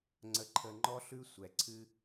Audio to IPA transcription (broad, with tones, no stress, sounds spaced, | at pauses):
ŋ͡ǀ ə˨ ǃʰ ə˨ ŋ͡ǃ ɔ˦ ɬ ʉ˦ sʷ ɛ˩ ǀʰ ɨ˦